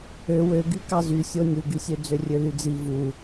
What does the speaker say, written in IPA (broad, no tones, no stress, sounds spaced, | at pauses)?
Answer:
ø w ø ɡ y k ɑ z y sʲ o nʲ u ɡ y sʲ ø d͡z ø rʲ ø l y d͡z i v u